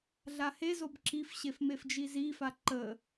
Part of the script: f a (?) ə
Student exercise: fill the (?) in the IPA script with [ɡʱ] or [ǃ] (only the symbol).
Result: ǃ